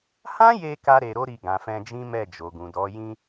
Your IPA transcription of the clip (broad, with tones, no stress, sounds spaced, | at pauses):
h ã˦ j e˧ k a˦ ɾ e˧ ɾ o˦ ɾ i˧ ɡ ã˨ f ɛ̃˧ d͡ʒ ĩ˦ m ɛ˦˨ d͡ʒ o˨ ɡ ũ˨ d ɔ˨˦ j ĩ˧